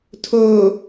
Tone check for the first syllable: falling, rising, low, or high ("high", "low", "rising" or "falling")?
low